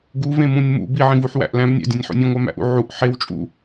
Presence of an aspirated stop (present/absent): absent